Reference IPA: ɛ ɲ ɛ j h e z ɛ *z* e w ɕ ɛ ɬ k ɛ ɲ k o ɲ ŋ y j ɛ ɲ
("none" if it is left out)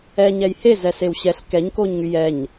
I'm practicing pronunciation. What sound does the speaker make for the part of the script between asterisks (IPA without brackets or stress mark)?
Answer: s